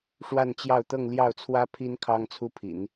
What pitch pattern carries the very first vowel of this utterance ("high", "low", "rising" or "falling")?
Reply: falling